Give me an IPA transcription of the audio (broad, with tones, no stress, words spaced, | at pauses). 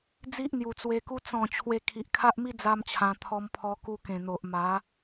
d͡zi˦ʔn̪ju˨˩t͡swe˧ku˦ t͡sɔ̃˥˧ t͡ɕʰwe˧kʰi˨ʔ kʰa˦ʔmi˦ d͡za˦mt͡ɕʰã˧ t̪ʰɔ˧mpʰɔ˧ ku˧kẽ˨˩n̪o˨ʔ ma˨˦